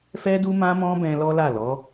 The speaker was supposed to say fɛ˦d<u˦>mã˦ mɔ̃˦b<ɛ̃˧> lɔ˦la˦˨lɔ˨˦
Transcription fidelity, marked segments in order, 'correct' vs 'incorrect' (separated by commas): correct, correct